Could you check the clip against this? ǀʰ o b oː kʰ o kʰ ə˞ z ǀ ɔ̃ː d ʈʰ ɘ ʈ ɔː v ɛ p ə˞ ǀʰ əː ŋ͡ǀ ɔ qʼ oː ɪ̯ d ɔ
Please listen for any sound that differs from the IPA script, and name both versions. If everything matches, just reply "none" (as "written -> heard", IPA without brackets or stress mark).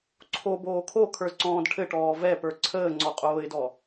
none